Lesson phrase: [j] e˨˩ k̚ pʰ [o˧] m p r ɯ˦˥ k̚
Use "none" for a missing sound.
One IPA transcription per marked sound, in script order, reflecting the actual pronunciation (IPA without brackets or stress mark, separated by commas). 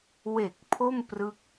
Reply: w, o˥˩